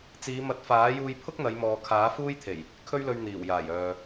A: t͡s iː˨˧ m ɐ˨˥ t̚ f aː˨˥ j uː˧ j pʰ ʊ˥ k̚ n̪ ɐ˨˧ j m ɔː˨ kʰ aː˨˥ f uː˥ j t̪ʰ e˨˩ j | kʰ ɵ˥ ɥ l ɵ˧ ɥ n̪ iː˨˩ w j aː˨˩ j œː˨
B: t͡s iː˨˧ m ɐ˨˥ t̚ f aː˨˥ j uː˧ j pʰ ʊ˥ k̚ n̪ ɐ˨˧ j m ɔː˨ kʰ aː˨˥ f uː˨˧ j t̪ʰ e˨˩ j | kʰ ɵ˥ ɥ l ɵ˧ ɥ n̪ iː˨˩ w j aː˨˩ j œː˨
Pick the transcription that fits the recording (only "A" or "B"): A